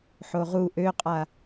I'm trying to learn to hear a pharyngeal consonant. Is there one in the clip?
yes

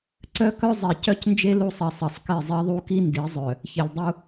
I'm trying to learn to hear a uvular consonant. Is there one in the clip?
no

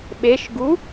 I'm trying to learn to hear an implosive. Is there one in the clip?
yes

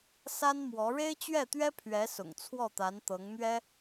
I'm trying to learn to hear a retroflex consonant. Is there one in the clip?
yes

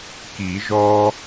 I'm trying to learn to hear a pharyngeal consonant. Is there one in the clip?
no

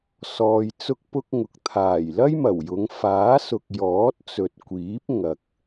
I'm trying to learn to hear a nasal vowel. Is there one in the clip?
no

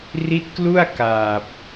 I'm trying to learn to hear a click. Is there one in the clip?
no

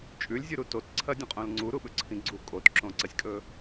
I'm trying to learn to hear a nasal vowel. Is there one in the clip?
yes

